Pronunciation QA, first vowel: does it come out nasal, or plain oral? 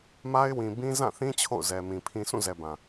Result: oral